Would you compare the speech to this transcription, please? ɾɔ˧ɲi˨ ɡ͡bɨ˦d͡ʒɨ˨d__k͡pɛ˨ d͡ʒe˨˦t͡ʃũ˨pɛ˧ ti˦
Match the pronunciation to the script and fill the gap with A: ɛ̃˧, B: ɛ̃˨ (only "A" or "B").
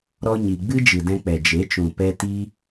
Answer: A